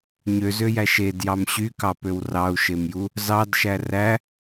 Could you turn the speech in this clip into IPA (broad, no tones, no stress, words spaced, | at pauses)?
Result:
ɲøzøjæ ʃedjɑm ɕykɑpøw rɑu̯ʃemju | zɑdʃæ ræ